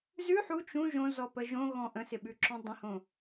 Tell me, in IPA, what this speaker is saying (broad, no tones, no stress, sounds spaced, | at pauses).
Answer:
z ʉ ħ u t͡ʃ ũ ʒ õ z ɔ p ə ʒ õ ɣ ɔ̃ ʔ ə̃ s ɪ ɓ ʉ ǁ ɔ̃ dˤ ə̃ h õ